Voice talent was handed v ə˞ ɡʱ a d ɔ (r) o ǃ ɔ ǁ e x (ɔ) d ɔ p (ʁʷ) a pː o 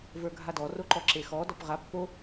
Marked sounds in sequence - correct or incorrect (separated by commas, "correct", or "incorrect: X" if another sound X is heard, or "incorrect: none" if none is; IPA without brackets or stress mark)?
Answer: correct, correct, incorrect: ʁ